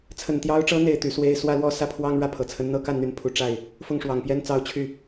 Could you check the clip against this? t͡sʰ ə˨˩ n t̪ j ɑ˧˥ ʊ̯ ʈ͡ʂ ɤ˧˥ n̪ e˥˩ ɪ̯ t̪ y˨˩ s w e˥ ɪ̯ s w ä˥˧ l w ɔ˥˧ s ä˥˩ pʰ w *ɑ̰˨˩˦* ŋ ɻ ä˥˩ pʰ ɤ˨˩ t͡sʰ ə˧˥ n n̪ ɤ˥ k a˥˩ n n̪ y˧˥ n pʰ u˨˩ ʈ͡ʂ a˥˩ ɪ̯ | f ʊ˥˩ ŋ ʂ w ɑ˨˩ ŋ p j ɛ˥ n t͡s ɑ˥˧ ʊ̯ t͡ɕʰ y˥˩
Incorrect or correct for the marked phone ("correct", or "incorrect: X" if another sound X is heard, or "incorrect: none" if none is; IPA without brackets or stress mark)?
incorrect: ɑ˥